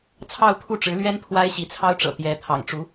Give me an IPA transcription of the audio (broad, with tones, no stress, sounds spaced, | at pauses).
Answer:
t͡sʰ ɑ˥˧ ʊ̯ pʰ u˥˩ ʈ͡ʂ ɻ̩˧˥ l ɥ ɛ˥ n pʰ w a˥ ɪ̯ ɕ i˧˥ t͡sʰ ɑ˥ ʊ̯ ʈ͡ʂ ɤ̰˨˩ t̪ j ɛ˧˥ t̪ʰ ɑ̰˨˩ ŋ ʈ͡ʂ u˧˥